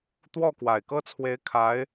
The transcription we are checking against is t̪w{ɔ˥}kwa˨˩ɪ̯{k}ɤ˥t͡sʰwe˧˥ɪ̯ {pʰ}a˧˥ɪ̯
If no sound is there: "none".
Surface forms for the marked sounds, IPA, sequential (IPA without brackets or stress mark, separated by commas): ɔ˥˩, k, kʰ